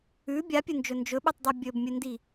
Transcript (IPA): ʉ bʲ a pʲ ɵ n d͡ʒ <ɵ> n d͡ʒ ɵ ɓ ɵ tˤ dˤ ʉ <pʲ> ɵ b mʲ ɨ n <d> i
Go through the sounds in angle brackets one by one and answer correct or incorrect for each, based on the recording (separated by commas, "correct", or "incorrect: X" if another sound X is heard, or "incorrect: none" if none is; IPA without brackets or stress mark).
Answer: correct, incorrect: bʲ, correct